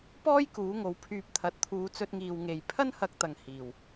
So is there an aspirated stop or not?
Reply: yes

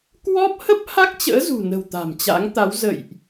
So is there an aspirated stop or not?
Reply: no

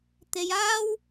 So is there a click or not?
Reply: no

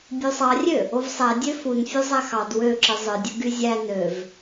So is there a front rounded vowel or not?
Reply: yes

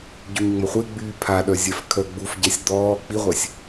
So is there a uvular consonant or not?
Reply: yes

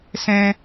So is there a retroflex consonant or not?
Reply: no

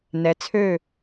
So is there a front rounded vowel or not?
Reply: yes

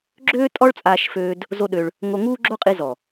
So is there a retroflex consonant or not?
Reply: yes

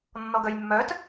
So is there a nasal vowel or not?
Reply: no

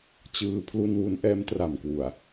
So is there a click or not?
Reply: no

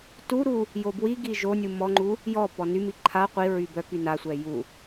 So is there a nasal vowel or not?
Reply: no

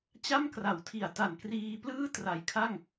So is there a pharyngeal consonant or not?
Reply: no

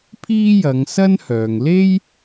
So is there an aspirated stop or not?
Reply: yes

